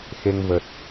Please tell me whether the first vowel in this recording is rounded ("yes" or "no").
no